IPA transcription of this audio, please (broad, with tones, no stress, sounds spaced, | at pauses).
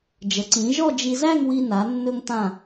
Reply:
d͡ʒ ə˩˧ ǀ ĩ˩˧ ʒ ɔ˥˧ d͡ʒ i˧ z æ˥˧ ŋ w i˧ n a˩˧ nː ɵ˧ ŋ t̪ ã˧˩